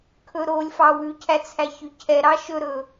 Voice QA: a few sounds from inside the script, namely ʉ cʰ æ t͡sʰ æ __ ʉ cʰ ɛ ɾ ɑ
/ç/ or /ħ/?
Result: ç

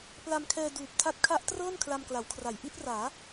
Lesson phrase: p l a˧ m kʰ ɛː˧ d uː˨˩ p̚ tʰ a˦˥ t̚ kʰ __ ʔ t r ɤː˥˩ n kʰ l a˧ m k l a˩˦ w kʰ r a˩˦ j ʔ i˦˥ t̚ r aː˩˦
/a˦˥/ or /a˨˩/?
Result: a˦˥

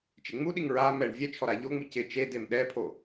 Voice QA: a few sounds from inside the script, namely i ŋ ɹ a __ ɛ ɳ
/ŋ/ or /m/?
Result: m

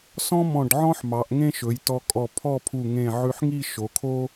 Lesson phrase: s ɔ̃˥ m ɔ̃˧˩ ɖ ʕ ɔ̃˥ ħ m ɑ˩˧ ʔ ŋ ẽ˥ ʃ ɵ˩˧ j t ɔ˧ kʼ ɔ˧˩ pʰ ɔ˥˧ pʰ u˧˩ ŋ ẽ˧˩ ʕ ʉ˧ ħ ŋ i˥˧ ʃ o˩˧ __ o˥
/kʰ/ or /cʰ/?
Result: kʰ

